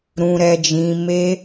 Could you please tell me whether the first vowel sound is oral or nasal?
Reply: nasal